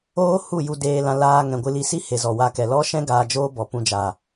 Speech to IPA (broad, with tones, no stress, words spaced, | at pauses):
oː˦ hu˦˨ju˧ deː˧lã˧ laː˧ ŋɛ̃˨ɡʷɨ˧li˧si˦ he˨zɔ˨wa˧kɛ˨ lɔ˦ʃɛ̃˦ ɡaː˧d͡ʒoː˦bɔ˨ pũ˧d͡ʒa˨